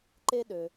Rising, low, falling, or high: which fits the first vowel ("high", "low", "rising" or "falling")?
high